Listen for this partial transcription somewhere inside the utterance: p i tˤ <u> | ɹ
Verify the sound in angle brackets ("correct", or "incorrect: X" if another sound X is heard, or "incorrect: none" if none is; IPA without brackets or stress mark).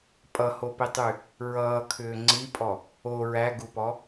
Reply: incorrect: y